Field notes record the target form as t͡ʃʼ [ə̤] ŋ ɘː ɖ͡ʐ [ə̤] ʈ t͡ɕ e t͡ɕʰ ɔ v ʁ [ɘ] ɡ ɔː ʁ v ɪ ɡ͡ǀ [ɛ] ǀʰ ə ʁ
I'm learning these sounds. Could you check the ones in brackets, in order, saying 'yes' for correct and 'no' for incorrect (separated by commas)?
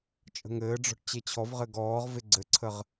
yes, no, yes, no